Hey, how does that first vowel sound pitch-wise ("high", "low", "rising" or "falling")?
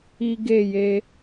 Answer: high